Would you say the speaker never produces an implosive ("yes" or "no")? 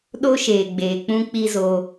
no